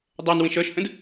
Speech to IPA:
dˤ ɛ n w ĩ ʃ œ ʃ h ə̃ d

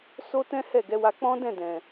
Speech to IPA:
s o˦ t ɛ̃˦ h ɛ˦˨ ɡ ɛ˨˦ w a˧ k͡p ɔ̃˦ d ɛ̃˦˨ d ɛ̃˨

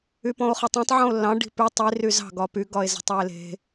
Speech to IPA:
y p ɔ̃ o̯ χ ɔ tˤ ɑ̃ tˤ ʕ ɔ̃ o̯ lː ɑ̃ ɖ i̤ p y tˤ i r y z ɑ̤ ɡ ɒ p y ɡ ɒ e̯ z i̤ tˤ ɑ e̯ l e̤

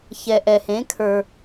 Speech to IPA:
ç ɛ˨ ʔ ɛ˨ h ẽ˨˦ kʰ ə˞˧

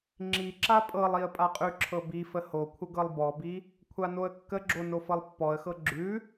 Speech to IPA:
ŋ͡ǁ i ǁ a pʼ ɤ lˠ i ə̯ pʼ a qʼ ʉ ǁʰ ɤ b i f ə h o kʷʰ ə ɡ ɤ lˠ b ɔ b i | kʷʰ a n o ə̯ kː ə ɡ͡ǁ o n o f ɤ lˠ pː ɔ ə̯ x ɤ ɡ͡ǁ ʉ

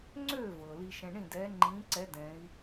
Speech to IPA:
ŋ͡ǀ øː˥˨ v ɤː˩ l i˧ ʃ ɛ̃˧ ɳ ĩ˥˨ d ɛː˧˥ ŋ͡ǃ ĩː˧˥ ǀ ɛ˧˥ d ɛ̃˧˥ i̯

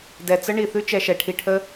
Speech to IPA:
d ɛ˨ t͡s ə˦ ɳ i˨ θ ʉ˦ t͡ʃ ɛ˧ ʃ ɛ˨ ʈʰ i˧ ʈʰ ə˦

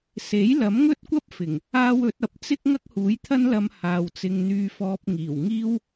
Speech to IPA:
s e˨˥ j l ɐ˨˥ m ŋ ɵ˥ t̚ kʷ ɐ˥ p̚ f ɪ˨˩ ŋ | aː˥ w ɵ˨˥ t̚ ɐ˨˥ p̚ t͡s ɪ˥ k̚ ŋ ɐ˥ k̚ h uː˨˥ j t̪ʰ ɐ˥ n l ɐ˧ m h aː˨ w t͡s ɪ˧ ŋ n̪ yː˧ f ɔː˧ p̚ ŋ iː˨˩ w ŋ iː˥ w

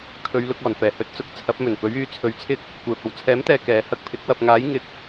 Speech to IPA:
kʰ ɵ˨˧ ɥ l ʊ˧ k̚ ɔː˨˩ n f ɛː˨˩ h ɵ˧ t̚ t͡s ʊ˧ k̚ t͡sʰ ɐ˨˥ p̚ m ɵ˨˩ n p ɵ˨˥ ɥ yː˨˥ t͡sʰ ɵ˨˧ ɥ t͡sʰ ɪ˥ k̚ | kʷ ɛː˧ p̚ ɐ˧ w t͡sʰ ɛː˨˥ m t̪ ɛː˨ k ɛː˨˧ h ɐ˧ k̚ pʰ ɪ˨˥ k̚ w ɐ˨ p̚ ŋ aː˨˥ j ŋ ɪ˨˥ k̚

